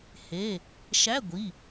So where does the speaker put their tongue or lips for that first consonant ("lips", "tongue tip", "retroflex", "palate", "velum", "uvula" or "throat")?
throat